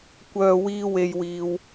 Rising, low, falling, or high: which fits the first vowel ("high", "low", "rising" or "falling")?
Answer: low